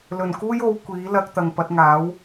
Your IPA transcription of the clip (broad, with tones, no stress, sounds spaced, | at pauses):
l ɵ˨˩ n k uː˥ j o˨˧ w kʷ iː˨˥ l ɐ˧ k̚ t̪ ɐ˨ ŋ p ɐ˨˥ t̚ ŋ aː˨˥ w